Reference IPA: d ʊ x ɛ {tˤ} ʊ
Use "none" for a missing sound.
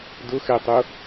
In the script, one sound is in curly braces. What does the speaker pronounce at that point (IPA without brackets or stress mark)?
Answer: tˤ